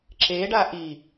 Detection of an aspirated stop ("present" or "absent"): absent